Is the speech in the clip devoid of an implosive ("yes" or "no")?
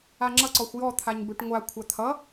yes